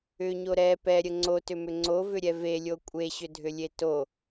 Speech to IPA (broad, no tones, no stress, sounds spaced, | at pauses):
ʏ ɲ o ɾ ɛ p ɛ ɾʲ ə ŋ͡ǀ o t ʏ m ʏ ŋ͡ǀ o v ʏ ɾʲ ɛ v e lʲ o kʷʼ e ɕ ʏ dʱ ʏ lʲ e t o